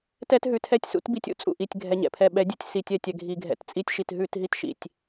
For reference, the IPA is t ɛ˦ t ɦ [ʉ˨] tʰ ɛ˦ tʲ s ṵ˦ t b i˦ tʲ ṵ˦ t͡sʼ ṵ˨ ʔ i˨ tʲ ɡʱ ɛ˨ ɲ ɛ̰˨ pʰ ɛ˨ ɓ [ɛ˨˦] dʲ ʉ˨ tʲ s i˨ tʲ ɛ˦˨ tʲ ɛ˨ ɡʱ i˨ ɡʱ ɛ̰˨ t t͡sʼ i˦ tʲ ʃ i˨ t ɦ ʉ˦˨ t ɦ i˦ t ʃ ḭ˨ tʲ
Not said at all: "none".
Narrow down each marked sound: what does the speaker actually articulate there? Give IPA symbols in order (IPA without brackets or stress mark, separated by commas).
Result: ʉ˨, ɛ˨˦